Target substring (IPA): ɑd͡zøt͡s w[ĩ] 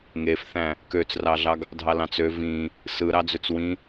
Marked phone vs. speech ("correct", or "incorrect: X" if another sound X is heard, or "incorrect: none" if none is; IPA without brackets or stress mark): correct